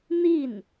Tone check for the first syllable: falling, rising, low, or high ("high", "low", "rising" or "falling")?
falling